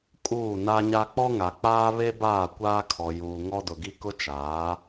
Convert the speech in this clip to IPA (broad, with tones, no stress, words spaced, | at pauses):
kʼuː˦˨na˦ɲa˦ k͡pɔ˦ŋa˨ k͡paː˦ βe˦baː˦˨ kʷaː˦kʰɔ˨ juː˨ŋɔ˦dʊ˨ɡi˦ kʊ˦t͡ʃaː˨˦